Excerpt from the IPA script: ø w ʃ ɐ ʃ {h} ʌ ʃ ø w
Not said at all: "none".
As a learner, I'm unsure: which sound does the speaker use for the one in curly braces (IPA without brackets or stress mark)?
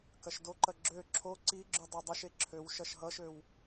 ɦ